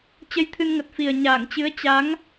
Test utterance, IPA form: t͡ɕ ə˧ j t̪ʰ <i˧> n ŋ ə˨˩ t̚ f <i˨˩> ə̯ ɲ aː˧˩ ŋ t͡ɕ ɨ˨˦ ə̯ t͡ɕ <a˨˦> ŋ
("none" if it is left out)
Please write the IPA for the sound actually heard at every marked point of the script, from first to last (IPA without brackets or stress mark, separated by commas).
ɨ˧, i˨˩, a˨˦